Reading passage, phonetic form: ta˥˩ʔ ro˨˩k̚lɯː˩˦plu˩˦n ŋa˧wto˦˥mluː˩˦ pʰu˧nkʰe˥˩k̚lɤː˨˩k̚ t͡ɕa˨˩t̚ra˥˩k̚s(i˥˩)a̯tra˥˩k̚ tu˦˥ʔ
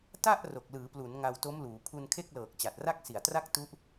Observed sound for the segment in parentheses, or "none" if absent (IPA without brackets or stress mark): i˨˩